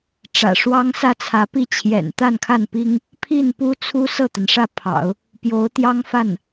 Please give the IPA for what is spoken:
ʈ͡ʂ ä̰˨˩ ʂ w ɑ˥ ŋ s ä˥˩ t͡sʰ ä˧˥ p i˥ t͡ɕʰ j ɛ̰˨˩ n t̪ a˥˧ n kʰ a˥˩ n p i˥ ŋ | pʰ i˥˩ n p u˥ t͡sʰ u˥ s ɤ˥˩ t̪ a˩ n ʂ ä˥˩ pʰ ɑ̰˨˩˦ ʊ̯ | p j o˧˥ ʊ̯ t̪ j ɑ˥ ŋ f a˥˩ n

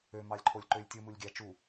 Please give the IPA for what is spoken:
ø m ɑ lʲ ǃʰ o lʲ ǃ ø lʲ tʲ ɯ m u lʲ ɡʲ æ t͡ʃ u

